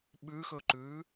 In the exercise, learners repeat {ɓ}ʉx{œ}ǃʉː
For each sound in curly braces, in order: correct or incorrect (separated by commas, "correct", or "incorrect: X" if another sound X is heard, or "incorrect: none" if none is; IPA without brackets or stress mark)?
correct, incorrect: ɵ